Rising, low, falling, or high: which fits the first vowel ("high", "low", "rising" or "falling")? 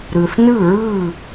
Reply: low